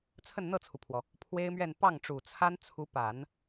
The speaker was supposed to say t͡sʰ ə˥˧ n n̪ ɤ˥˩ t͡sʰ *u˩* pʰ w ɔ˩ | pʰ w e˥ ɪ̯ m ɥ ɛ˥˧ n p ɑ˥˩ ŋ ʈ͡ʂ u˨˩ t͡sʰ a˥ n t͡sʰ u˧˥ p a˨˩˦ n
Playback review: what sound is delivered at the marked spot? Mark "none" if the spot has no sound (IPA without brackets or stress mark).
u˩